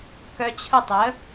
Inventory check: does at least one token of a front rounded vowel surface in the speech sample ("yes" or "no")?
yes